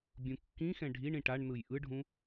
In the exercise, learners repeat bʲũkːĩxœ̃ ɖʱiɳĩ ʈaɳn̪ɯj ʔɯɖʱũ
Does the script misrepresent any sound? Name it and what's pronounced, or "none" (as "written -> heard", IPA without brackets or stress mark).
œ̃ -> ɛ̃